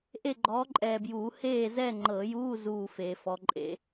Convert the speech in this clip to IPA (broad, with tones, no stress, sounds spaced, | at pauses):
ʔ e˥˨ ɡ͡ǃ ɔː˨˥ ǃʼ ɛː˨ b j uː˨˩˦ h eː˥˨ z ɛ˥˨ ŋ͡ǃ ɤ˨˩˦ j uː˧˥˧ z uː˥˨ f eː˨ f ɔ˨˥ ǃʼ ḛ˨˥